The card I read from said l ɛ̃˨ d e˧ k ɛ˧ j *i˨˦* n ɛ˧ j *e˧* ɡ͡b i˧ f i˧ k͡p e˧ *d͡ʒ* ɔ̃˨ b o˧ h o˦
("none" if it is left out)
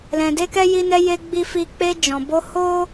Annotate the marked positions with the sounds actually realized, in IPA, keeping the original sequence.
i˧, e˧, d͡ʒ

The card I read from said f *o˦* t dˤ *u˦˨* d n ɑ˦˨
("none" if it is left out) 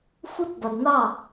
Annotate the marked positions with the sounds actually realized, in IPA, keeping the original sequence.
u˦, u˨

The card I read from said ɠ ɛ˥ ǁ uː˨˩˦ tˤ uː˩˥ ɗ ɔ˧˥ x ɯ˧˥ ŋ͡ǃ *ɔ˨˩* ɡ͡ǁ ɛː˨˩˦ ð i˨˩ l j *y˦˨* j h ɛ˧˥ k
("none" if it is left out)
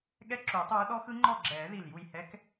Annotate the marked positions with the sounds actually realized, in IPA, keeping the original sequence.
ɔ˦˨, u˦˨

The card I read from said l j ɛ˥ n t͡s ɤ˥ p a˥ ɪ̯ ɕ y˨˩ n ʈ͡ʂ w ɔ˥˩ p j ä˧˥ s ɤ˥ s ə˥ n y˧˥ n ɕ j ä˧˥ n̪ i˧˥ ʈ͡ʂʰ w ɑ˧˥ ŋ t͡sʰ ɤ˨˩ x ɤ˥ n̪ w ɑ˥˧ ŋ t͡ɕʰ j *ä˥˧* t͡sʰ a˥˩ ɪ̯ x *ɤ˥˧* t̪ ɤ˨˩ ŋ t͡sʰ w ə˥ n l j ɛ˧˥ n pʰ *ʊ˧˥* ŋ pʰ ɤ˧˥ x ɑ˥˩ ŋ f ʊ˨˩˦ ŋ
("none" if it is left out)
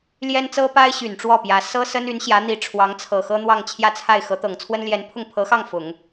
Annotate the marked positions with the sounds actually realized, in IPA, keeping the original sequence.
ä˥˧, ɤ˧˥, ʊ˥˩

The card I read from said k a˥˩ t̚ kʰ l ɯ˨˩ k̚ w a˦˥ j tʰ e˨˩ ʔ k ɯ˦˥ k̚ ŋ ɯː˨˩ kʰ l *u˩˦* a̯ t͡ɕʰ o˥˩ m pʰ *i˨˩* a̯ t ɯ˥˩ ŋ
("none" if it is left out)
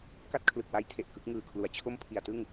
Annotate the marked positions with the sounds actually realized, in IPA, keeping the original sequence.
u˩˦, i˨˩

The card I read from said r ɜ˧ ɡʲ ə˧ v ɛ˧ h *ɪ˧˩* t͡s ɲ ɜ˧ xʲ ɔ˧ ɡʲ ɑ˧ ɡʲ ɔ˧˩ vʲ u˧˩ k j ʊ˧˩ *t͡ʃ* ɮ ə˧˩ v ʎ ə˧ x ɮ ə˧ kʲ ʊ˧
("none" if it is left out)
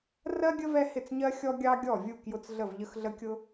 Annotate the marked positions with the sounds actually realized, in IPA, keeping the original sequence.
ɪ˧˩, t͡s

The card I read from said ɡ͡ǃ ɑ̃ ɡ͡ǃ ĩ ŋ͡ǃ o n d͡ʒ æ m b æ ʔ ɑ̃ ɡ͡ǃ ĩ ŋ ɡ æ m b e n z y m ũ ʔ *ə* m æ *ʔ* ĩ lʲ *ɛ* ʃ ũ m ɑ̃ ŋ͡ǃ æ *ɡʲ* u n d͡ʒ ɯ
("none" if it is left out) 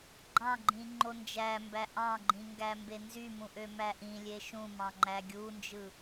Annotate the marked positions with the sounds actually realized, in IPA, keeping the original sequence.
ø, ʔ, e, ɡʲ

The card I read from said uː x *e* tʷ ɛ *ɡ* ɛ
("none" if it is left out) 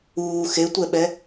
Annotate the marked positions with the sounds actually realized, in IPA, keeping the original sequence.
e, ɓ

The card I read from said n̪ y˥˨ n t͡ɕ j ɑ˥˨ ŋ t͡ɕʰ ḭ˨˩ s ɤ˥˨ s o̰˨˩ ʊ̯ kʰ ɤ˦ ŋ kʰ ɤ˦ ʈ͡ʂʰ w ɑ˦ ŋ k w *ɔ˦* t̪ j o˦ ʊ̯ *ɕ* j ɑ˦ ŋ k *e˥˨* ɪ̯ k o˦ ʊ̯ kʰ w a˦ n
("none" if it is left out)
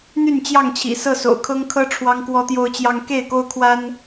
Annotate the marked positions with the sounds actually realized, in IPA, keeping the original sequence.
ɔ˦, t͡ɕ, e˥˨

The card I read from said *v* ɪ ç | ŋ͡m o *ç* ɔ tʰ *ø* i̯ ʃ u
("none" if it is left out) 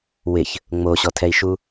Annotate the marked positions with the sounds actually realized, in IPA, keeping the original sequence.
w, ɕ, ɛ

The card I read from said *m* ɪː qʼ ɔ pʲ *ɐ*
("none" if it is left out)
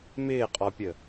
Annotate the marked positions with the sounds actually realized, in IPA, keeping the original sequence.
m, ə

